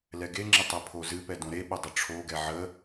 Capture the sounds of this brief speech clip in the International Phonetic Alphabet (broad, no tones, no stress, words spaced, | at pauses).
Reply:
lɛɡeŋ͡ǁɪ tˤɛpʰozɨpɛ dõɾeɓə dˤəʈ͡ʂʰoɡɛ ʕə